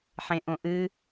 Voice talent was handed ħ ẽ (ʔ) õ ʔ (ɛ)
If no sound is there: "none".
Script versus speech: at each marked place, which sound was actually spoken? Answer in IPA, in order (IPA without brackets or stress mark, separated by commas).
ʔ, ɨ